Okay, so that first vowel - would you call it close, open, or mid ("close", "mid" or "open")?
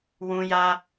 close